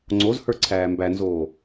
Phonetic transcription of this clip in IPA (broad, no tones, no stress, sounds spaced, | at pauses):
ŋ͡ǀ o z h ə˞ ǀʰ æː m b æ n z oː